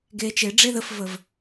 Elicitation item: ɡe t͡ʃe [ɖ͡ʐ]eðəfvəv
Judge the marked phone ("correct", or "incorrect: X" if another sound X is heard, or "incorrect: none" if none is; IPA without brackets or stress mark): correct